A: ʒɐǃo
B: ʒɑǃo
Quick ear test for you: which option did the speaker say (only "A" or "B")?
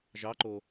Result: B